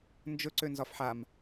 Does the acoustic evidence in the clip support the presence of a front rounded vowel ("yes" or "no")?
yes